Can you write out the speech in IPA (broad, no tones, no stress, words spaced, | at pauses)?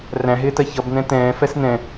ræ̃ɦɪːtɜ çʌbn̪ɛ̃ tɛ̃ːfɛs n̪ɛ̃